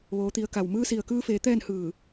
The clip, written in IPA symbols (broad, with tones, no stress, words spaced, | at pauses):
ʋoː˩˧t̪i˩˧ə̯ka˩w mɯː˧si˩ə̯kɯː˧feː˩˧ t̪ɛː˥˨nhɯː˧˩